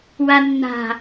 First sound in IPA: w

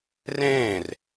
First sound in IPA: r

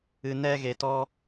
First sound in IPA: ɨ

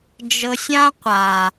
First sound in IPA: d͡ʒ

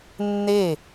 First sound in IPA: nː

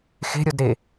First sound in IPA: x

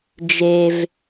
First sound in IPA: d͡ʒ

